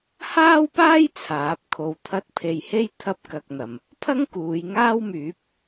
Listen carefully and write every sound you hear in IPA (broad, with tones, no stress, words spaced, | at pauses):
haː˥wpaː˥j t͡sʰaː˨˥p̚kʰo˧wt̪ʰɐ˥t̚ pʰe˧jhe˥j t̪ʰɐ˥p̚kɐ˧k̚n̪ɐ˨m | pʰɐ˥ŋ kuː˨˧jŋaː˥wmyː˨˥p̚